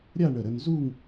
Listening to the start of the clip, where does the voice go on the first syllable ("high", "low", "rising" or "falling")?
falling